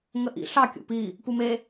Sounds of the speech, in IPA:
ŋ ə ʔ ḭ ɬ ɑ kʲ ṵ p i | p u m e

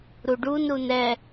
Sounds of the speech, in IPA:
ɾ u ɖ u n ɾ u n ɛ

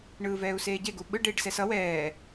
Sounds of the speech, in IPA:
ɳ ɯː v ɛː u̯ s eː ɟ e ɡ u ɓ ɯ ɖ eː ɖ s ɛ s ʌ w ɛː

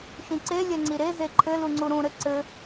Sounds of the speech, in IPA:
ʃ ĩ ǀ e lʲ ɛ ŋ͡ǀ i ɾ e z e ǃʰ ɘ l u ŋ͡ǀ u ɾ ũ ɾ ɘ ǀ ɘ

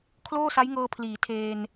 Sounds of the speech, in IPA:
kʰ l oː˥˩ s a˦˥ j ŋ ɤː˧ pʰ l iː˩˦ tʰ eː˧ n

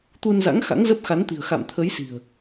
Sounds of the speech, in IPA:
t̪ u˧ n z a̰˧˥ ŋ x a̰˧˥ ŋ z ə˦˥ p̚ x a˨˦ n t̪ i̤˨˩ ə̯ x a̰˧˨ m t̪ʰ ə˨˦ j s i̤˨˩ ə̯

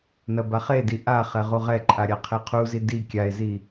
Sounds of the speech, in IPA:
n ɐ b a χ e d i ʔ a χ ɛ ʁ u ʁ ɛ ǃʼ a ɾʲ a qʰ e qʰ u z i d i kʲ a e̯ z i

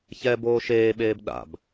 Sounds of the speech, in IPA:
ç ɛ b oː ʃ eː ɓ eː b ɗ a̰ b

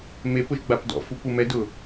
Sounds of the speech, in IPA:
m e p ʊ ʒ ɡ͡b a p d ɔ̰ f u p u m ɛ d ʊ

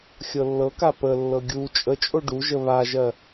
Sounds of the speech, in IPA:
xʲ ɤ lː ɤ k a p ə lː ɤ ɡʲ u t͡ʃʼ ə t͡ʃʼ o ɖ u ʒ ə β a ʒ ɜ

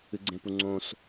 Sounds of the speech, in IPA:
ɨ ɡ͡ǀ ẽ p u ŋ͡ǀ õ s

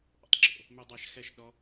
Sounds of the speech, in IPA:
ʔ ɔ̰ tˤ ɡ͡ǁ o̰ | m ʉ dˤ a ʃ x ɛ ʃ ɗ ɔ

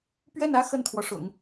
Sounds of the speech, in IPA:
p ɥ ɛ˥˩ n ä˥ x ə˥˩ n t̪ʰ w ɔ˩ ʂ ʊ̰˨˩˦ ŋ

